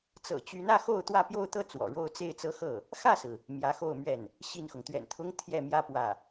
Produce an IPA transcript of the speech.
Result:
t͡s ɤ̰˨˩ t͡ɕ y˧˥ n ä˥˧ x o˥˧ ʊ̯ t̪ w ä˥˧ p j o˥˧ ʊ̯ t̪ ɤ˥˩ t͡s w ɔ̰˨˩ ɻ o˥ ʊ̯ t͡s e˥˩ ɪ̯ t͡s ɤ˥ x ɤ˥˩ | x ä˥˩ s ɹ̩˩ | m j ä˧˥ x o˥˧ ʊ̯ m ɥ ɛ˥˩ n | ɕ i˥˩ n x ʊ˩ ŋ t̪ ɥ ɛ̰˨˩ n t̪ʰ ʊ˥ ŋ t̪ʰ j ɛ˥˩ m j ä˥ p w ä˥˩

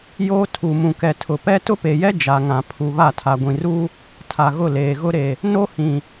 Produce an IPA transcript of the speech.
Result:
j oː˦ tʰ u˨ m ũ˨ k ɛ˨ tʰ ʊ˨ p ɛ˦ t ʊ˦ p e˨ j ɛ˦ d͡ʒ a˨ ŋ ã˨ pʰ u˨ β a˦˨ tʰ a˨ ɡʷ ĩ˨ r u˦ | tʰ a˨ ɣ ʊ˦˨ l eː˨ ɣ ʊ˦ ɾ e˨ | n o˦ h ĩ˨

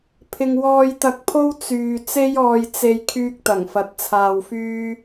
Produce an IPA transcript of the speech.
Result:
pʰ ɪ˨ ŋ w ɔː˧ j t̪ ɐ˧ k̚ pʰ o˥ w t͡s yː˨ t͡s e˥ j ɔː˧ j t͡s e˧ j kʰ yː˧ k̚ t̪ ɐ˨˩ ŋ f ɐ˨˥ t̚ t͡sʰ aː˧ w f yː˥

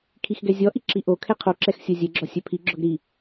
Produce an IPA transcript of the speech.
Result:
kʰ i x ɡ ɛ zʲ ɔ ʔ i ǁ i ʔ o kʰ ɛ qʰ o ǁ ɛ x sʲ o zʲ ɛ ɡ͡ǁ ɔ sʲ œ pʰ i ɡ͡ǁ ɔ ɡ ɾ i

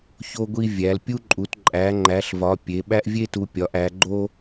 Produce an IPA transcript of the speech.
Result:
ç o˥ ɡʷ i˥ vʲ æ˨˦ l pʲ u˥ ǃʼ u˨˦ t ǃʼ æ˨˦ ŋ͡ǃ æ˨˦ ɬ v ɒ˨˦ pʲ e˨˦ ɓ æ˥ ʔ vʲ e˥ t u˨˦ pʲ ɒ˨˦ ʔ æ˨˦ ɡ͡ǃ o˥

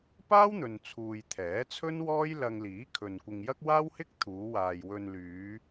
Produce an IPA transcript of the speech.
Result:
p aː˥ w n̪ ɵ˨ n t͡sʰ uː˨ j t̪ʰ ɛː˨˥ t͡sʰ ɵ˥ n w ɔː˥ j l ɐ˧ ŋ l iː˨˥ kʰ ɵ˨ n kʷ ɪ˧ ŋ j ɐ˥ k̚ w aː˥ w h ɪ˥ k̚ t̪ʰ uː˨˧ w aː˨ j w ɵ˧ n l yː˨˧

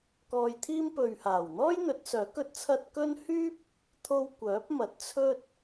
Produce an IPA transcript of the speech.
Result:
k ɔː˧ j t̪ʰ iː˥ m p ɵ˨ ɥ h aː˨˩ w n̪ ɔː˥ j n̪ ɵ˨˥ t̚ s œː˨˥ k ɵ˧ t̚ t͡sʰ ɐ˧ t̚ k ɵ˥ n h yː˥ p̚ | t̪ʰ o˧ w kʷ œː˨˥ p̚ m ɐ˨˥ t̚ t͡sʰ ɵ˥ t̚

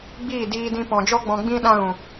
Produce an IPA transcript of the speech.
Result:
ɡ͡b iː˦˨ d iː˧ d ĩ˧ p ɔ̃˨ d͡ʒ ɔ˦ ɡ͡b ɔ̃˧ ɡ͡b ĩ˦ ɗ ã˦ ɣ ũ˨

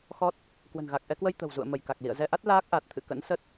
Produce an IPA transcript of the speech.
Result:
x ɔ˦˥ t̚ | k w ə̤˨˩ n ɣ a˨˩ k̚ ʔ ɛ˧ k w ə˧ j t̪ ə̤˨˩ w z ṵ˧˨ ə̯ m ə˧˩ j k a˨˩ k̚ l ḭ˧˨ ə̯ z ɛ˧ ʔ a˦˥ t̚ l aː˦˥ k̚ ʔ a˨˩ t̚ t̪ʰ ɨ̰˧˨ k ə̰˧˥ n s ə˦˥ t̚

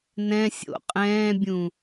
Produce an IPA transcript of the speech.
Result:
n ɛ̃ sʲ o̰ qʼ ɛ̃ː bʲ ũ

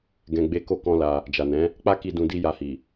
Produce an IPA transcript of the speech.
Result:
ɡ ɛ̃˧ ɡ͡b e˦ k o˦ k ɔ̃˦ l a˧ | d͡ʒ a˨ n ɛ̃˨˦ | k͡p a˦ k i˧ d ũ˧ d i˦ j a˧ h i˨

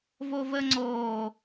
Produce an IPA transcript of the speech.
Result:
v o v əː ŋ͡ǀ oː

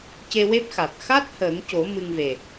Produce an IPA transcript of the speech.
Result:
c e˧ w e˦˥ p̚ x a˨˩ t̚ x a˦˥ t̚ h əː˨˩˦ ŋ c o˨˩˦ m ɨ˧ ŋ v e˨˩

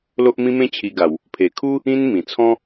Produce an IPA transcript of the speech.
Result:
l o˦ ʔ m ĩ˦ m ẽ˥˧ t͡ɕʰ i˧ ɡ a˨˩ w | pʰ e˨˩ kʰ u˦ | ĩ˦ n m ĩ˨˩ t͡sʰ ɔ̃˦

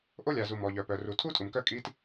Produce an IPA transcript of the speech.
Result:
ʔ o˥ lʲ a˩ z u˩ m ɔ˩ ʎ œ˩ p œ˩ r u˩ tʰ u˥ tʼ u˩ m k œ˥ kʼ i˥ t

